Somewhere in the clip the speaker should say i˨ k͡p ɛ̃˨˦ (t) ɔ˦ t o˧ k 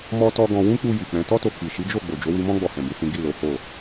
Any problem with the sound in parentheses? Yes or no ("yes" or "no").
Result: no